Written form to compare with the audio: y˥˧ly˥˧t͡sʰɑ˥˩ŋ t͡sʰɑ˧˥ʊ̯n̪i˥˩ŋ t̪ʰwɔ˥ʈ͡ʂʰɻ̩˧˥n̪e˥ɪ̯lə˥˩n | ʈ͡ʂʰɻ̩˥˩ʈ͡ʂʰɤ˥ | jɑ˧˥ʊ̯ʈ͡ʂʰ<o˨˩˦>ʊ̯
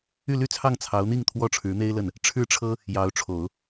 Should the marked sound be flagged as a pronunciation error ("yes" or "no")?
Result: no